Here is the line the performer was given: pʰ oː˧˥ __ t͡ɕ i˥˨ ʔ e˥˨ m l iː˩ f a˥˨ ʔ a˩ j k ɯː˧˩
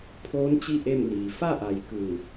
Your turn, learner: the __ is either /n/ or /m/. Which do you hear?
n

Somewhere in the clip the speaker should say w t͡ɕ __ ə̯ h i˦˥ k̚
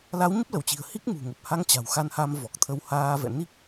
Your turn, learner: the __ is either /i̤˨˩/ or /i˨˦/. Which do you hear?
i̤˨˩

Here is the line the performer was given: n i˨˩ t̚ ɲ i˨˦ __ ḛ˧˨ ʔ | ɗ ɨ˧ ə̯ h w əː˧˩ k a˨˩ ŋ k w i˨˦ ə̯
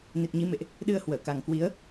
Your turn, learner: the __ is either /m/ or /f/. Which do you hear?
m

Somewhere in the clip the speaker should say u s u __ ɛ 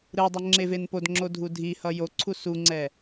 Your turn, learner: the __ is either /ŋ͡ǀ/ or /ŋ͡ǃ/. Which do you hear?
ŋ͡ǀ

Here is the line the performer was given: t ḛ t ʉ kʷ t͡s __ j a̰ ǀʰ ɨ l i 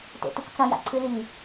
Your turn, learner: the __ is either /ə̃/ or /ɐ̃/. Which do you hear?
ɐ̃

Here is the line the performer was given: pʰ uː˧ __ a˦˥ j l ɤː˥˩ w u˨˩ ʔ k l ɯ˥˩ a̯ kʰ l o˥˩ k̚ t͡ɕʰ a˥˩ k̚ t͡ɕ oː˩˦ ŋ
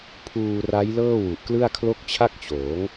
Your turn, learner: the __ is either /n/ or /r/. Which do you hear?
r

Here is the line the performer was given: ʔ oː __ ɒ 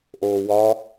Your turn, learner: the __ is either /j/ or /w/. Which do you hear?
w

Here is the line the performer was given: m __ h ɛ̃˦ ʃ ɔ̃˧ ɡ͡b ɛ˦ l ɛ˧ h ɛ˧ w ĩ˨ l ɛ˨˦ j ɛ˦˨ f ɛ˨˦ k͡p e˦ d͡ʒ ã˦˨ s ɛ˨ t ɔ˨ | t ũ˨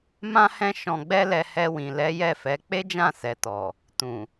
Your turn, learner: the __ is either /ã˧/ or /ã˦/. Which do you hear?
ã˦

